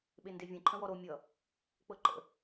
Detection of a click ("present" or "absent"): present